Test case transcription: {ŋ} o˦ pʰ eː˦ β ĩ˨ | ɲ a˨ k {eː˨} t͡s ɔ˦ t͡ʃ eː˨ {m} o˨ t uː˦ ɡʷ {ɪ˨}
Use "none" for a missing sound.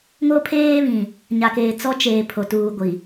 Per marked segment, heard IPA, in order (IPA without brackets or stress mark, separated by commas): ŋ, eː˨, pʰ, i˨